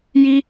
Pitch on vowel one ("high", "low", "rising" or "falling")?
high